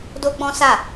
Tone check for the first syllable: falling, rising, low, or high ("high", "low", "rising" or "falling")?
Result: high